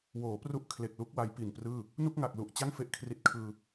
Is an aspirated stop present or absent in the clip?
present